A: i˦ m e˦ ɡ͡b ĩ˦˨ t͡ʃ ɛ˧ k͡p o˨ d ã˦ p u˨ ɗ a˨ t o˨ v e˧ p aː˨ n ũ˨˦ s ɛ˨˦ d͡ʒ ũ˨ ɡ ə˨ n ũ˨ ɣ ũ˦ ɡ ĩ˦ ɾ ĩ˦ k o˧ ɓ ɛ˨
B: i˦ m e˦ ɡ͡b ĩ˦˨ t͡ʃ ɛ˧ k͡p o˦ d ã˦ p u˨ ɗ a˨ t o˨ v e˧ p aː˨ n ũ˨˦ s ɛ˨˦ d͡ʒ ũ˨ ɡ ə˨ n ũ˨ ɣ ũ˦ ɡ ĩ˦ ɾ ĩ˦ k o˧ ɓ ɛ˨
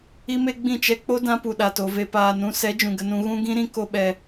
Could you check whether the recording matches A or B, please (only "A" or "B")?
B